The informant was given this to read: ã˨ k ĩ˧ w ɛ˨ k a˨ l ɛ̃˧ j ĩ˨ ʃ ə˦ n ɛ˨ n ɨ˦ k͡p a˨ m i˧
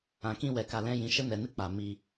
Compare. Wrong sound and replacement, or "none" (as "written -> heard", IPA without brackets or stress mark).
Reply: none